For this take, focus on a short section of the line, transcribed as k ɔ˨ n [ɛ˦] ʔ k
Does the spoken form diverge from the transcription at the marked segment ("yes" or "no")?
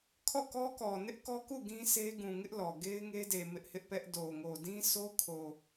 yes